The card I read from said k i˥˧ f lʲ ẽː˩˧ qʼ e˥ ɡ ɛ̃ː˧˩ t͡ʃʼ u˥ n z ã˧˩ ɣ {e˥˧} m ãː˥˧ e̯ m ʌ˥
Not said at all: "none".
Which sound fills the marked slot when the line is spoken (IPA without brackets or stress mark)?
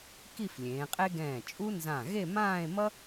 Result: e˥˧